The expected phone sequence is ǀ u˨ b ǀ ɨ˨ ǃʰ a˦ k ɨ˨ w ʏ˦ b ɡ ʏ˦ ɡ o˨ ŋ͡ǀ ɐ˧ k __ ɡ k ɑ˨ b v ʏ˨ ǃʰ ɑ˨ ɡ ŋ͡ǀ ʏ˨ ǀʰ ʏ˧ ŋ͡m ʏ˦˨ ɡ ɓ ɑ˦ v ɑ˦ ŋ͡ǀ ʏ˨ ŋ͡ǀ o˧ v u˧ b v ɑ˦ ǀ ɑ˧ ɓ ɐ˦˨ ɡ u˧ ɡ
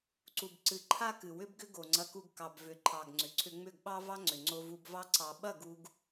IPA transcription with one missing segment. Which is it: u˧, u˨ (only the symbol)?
u˧